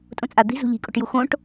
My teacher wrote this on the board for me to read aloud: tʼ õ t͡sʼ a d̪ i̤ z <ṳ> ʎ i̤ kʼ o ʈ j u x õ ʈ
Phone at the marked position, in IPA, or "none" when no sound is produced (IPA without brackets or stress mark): ṳ